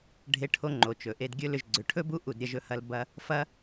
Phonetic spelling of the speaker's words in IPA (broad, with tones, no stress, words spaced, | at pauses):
ɖʱe˧ʈʰo˧ŋ͡ǃo˨ t͡ʃɵ˨ʔe˧dɡʲɵ˦lʏ˧ʒ ɡ͡ǀʏ˨ʈʰɵ˦bu˦ ʔu˦˨dɾʲɐ˦ʒɵ˦hɐ˦l bɐ˦ | fɐ˦